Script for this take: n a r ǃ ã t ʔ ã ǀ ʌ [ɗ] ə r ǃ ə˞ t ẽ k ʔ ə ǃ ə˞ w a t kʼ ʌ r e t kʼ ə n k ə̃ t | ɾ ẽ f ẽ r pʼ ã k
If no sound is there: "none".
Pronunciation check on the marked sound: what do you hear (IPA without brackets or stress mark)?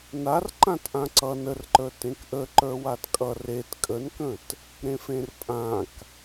n